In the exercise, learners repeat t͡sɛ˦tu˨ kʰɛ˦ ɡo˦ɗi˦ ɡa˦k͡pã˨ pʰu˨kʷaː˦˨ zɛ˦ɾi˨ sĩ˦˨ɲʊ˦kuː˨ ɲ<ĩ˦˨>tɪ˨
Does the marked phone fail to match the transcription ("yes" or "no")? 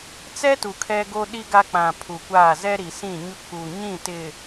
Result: no